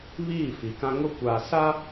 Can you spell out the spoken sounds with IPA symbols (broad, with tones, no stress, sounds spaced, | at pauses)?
β iː˦˨ f i˨˦ k ã˦ ŋ ʊ˦ kʷ aː˨ s a˦